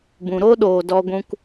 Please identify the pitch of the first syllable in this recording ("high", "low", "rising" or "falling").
low